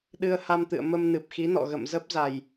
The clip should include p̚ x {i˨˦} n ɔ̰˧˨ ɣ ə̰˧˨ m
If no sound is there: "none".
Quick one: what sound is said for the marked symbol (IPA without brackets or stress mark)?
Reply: i˨˦